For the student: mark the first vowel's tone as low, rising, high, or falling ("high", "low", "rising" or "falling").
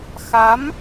rising